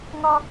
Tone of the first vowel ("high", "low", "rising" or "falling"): high